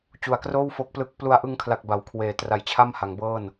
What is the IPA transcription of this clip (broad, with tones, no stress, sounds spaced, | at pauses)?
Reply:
t͡ɕ u˨˩ a̯ k r oː˥˩ w f o˦˥ k̚ p l ɯ˦˥ k̚ p l u˧ a̯ ʔ ɯ˧ ŋ kʰ l a˨˩ k̚ b a˩˦ w kʰ w eː˩˦ t r a˨˩ j t͡ɕʰ a˥˩ m h a˩˦ ŋ b ɤː˥˩ n